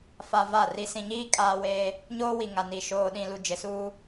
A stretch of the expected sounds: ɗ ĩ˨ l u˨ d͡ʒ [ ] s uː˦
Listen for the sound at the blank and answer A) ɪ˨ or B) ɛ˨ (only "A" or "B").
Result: A